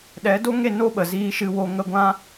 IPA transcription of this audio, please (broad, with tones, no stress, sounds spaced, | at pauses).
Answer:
ɗ ɛ˨˦ d o˦ ŋ e˦˨ n o˦ ɓ ə˨ z iː˧ ʃ ɨ˧ w o˧ ŋ ə˦ ɡʷ ã˦